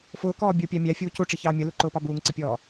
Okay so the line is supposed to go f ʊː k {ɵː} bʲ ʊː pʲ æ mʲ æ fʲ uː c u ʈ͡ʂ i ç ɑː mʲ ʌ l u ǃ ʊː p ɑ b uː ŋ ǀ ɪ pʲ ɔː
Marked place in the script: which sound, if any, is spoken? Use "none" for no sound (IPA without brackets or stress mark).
ɔː